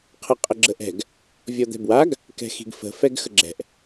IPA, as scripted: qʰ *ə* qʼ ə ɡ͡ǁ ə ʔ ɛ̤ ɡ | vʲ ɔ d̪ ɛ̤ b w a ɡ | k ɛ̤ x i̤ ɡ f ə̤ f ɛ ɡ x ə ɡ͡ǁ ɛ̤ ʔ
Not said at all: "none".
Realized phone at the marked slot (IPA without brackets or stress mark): ə